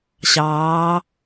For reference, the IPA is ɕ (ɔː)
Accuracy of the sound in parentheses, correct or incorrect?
incorrect